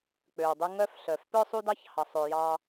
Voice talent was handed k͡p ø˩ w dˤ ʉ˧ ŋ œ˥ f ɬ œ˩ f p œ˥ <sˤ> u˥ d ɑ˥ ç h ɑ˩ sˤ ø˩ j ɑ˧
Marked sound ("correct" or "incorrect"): correct